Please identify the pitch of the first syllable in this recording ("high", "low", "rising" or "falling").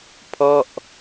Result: falling